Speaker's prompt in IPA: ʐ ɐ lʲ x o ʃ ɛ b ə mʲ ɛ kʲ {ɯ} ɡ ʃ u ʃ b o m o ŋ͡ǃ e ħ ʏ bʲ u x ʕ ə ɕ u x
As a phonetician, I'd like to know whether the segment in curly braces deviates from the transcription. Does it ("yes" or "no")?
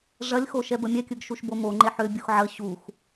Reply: no